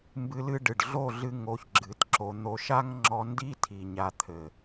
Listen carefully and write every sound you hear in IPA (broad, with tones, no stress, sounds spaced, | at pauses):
m b ɨ˧ l ɨ˧ ɖ ɨ˨ ɖ ɮ o˦˨ ɮ ɨ˧ ŋ o˧ ç ɡ͡ǁ ɨ˨˦ t ǁ o˧ n̪ o˧ ʃ a˦ ŋ ŋ͡ǁ ɔ˧ n d i˦ tʰ i˨ ɲ a˧ t̪ʰ ɘ˨